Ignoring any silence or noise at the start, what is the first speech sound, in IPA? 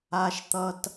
a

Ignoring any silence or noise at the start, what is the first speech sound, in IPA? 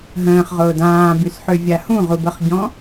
ɦ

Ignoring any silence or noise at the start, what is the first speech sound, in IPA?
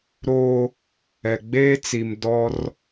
ɾ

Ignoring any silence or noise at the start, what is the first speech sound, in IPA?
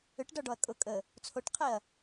ʏ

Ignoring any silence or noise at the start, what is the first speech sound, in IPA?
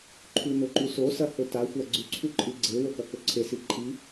ǃʰ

